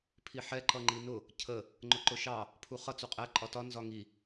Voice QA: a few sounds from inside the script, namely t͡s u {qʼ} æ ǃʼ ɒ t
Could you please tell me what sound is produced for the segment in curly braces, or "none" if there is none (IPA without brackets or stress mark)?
qʼ